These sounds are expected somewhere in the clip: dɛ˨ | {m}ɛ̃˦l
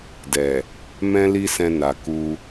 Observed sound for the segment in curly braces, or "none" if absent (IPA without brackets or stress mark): m